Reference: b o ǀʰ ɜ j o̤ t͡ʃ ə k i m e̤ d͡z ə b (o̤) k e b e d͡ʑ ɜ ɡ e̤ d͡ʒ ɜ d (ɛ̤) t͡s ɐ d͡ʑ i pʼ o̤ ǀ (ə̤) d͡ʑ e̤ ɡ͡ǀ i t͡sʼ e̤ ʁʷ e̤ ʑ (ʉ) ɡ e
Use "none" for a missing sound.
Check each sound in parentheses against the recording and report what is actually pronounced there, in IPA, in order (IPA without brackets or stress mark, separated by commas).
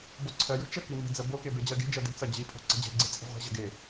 o, e̤, ə̤, ə